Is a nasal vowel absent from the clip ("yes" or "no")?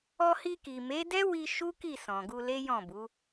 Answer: no